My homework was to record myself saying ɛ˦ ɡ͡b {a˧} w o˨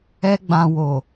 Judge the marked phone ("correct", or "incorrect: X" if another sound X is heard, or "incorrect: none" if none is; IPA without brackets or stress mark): incorrect: ã˧